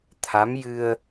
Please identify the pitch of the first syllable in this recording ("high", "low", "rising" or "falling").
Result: rising